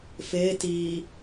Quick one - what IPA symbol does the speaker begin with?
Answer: f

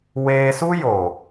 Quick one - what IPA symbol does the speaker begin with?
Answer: w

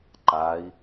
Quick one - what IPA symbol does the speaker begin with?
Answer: ǃ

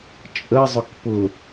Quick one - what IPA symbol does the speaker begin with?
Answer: t͡ʃʼ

